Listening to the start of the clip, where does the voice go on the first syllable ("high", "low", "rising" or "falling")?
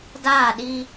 falling